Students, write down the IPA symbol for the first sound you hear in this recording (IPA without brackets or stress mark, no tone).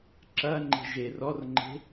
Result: ǁ